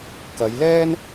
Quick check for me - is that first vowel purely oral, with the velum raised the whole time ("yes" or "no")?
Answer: yes